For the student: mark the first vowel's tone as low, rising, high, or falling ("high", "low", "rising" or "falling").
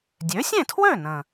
rising